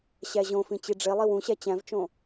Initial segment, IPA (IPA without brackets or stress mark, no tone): ɕ